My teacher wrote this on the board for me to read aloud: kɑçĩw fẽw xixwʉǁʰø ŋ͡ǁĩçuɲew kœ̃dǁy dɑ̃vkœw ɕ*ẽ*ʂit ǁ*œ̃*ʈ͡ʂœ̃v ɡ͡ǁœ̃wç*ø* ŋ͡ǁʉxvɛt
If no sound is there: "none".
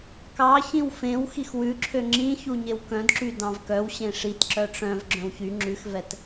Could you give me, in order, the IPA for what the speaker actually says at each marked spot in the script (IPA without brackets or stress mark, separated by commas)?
ẽ, œ, y